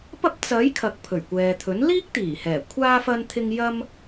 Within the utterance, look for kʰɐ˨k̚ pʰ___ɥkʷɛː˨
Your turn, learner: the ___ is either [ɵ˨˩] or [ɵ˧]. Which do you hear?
ɵ˨˩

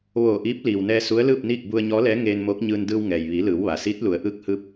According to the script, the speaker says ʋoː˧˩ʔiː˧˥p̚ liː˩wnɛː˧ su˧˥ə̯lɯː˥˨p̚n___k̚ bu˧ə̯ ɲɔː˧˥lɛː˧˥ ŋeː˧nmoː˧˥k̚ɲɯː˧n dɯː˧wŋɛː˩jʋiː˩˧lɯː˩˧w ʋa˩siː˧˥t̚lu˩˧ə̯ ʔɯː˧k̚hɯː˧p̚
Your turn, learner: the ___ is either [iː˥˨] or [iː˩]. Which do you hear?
iː˥˨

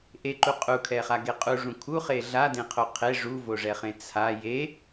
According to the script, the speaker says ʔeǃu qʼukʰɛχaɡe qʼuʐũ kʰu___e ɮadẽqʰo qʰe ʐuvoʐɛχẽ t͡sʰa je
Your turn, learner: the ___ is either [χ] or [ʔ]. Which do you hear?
χ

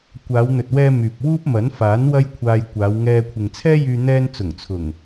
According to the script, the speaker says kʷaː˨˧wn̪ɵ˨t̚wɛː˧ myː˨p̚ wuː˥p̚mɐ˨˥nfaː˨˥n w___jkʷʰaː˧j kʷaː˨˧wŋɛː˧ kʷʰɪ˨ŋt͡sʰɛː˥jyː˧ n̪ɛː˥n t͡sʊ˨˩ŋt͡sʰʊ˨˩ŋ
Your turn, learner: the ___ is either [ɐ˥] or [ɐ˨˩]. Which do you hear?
ɐ˥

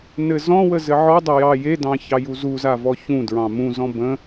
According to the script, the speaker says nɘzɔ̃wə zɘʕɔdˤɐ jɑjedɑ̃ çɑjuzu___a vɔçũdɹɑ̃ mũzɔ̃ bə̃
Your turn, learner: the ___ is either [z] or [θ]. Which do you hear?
z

